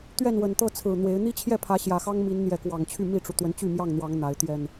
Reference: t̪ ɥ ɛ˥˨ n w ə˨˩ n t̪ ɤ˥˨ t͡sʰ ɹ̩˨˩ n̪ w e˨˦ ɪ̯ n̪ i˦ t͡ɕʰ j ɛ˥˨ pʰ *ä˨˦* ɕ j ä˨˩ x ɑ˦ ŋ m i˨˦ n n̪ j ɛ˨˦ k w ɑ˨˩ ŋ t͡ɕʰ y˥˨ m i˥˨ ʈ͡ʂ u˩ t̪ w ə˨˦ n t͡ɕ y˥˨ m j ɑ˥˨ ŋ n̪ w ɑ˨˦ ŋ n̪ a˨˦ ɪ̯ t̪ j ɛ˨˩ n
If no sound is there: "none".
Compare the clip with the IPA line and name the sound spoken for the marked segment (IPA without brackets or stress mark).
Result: ä˨˦